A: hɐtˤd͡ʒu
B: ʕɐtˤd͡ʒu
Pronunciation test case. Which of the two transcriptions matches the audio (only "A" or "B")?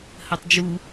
A